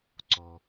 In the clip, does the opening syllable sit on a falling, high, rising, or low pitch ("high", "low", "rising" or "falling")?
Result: low